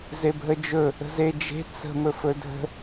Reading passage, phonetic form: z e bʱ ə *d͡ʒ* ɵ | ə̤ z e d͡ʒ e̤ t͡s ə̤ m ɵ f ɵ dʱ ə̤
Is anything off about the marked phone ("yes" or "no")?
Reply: no